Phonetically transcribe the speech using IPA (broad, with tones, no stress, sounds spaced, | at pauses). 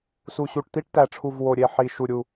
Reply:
s u˨˩ ɕ u˨˩ ʈ t̪ i˥ ʈ t æ˨˩ ʈ͡ʂʰ u˨˩ v w o˨˩ ɾʲ e˨˩ ħ i˨˩ ʃ u˨˩ ɾʲ u˨˩